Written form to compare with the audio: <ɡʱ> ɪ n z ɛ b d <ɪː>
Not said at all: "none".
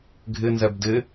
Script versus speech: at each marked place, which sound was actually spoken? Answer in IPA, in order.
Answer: ɡʱ, ɪ

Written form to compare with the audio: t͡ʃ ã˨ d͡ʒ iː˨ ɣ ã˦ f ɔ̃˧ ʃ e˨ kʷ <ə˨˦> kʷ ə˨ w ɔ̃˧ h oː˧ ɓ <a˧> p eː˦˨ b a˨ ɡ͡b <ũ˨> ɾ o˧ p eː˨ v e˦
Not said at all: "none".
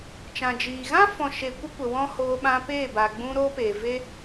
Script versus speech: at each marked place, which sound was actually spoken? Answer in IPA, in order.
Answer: ə˧, ã˧, ũ˧

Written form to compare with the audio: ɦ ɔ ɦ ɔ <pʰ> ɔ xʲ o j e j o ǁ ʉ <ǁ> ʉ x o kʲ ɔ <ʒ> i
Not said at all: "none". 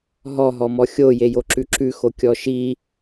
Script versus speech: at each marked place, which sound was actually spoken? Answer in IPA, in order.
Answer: m, ǁ, ʃ

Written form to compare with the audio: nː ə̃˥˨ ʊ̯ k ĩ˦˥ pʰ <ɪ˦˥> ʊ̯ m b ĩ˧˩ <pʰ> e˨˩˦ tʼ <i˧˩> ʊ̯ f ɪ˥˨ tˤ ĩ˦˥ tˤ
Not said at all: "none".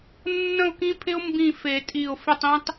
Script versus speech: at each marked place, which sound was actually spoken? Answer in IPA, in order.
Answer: ɪ˦˥, f, i˧˩

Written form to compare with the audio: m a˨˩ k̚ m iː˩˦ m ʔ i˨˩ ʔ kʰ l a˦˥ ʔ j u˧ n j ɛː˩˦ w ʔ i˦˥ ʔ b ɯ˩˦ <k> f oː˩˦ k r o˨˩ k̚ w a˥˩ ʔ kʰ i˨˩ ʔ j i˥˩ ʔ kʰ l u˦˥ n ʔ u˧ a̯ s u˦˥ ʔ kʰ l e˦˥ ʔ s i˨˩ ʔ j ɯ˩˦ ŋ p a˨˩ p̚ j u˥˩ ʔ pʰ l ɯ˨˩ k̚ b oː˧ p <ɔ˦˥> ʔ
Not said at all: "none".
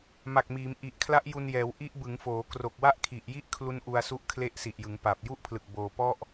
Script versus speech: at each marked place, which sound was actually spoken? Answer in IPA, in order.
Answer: ŋ, ɔ˥˩

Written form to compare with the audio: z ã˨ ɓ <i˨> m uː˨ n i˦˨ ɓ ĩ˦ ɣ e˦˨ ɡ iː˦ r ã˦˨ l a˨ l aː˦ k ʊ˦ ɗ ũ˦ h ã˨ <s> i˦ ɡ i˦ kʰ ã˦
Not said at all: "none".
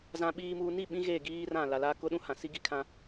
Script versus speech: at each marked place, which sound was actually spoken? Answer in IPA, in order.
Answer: iː˨, s

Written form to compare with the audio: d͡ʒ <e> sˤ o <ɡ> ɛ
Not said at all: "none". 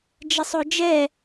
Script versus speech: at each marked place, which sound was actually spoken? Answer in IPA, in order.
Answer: ɛ, d͡ʒ

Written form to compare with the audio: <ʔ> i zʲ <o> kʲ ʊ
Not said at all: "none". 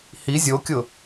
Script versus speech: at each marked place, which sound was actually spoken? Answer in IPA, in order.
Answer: h, o

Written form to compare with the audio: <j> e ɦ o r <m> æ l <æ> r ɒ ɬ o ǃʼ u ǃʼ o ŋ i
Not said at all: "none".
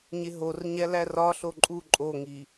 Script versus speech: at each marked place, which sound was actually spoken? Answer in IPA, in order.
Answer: ɲ, ɲ, æ

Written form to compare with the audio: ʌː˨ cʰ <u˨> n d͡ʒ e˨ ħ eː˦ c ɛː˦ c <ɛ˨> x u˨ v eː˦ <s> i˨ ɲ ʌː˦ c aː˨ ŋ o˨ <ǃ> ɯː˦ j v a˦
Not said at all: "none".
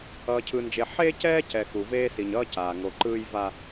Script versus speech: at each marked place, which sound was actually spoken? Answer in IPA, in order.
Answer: ɯ˨, ɛ˨, s, ǃ

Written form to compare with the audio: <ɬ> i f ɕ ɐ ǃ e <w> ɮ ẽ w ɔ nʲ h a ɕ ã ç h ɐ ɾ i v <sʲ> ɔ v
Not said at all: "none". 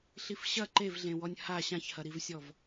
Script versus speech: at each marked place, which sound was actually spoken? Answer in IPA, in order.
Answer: ɬ, v, sʲ

